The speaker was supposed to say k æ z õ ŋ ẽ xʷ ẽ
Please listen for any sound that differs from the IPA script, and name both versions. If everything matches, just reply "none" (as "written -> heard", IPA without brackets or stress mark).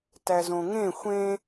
k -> t